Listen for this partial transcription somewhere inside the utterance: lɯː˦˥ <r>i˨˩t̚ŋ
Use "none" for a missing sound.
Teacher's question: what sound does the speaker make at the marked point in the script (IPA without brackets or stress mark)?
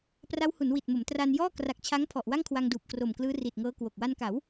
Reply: r